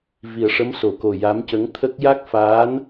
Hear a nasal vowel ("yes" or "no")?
no